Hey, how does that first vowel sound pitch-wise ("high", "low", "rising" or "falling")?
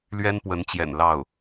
high